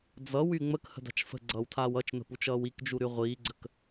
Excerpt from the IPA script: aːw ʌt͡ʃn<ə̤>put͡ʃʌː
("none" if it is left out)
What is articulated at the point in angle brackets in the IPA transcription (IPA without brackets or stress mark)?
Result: ə̤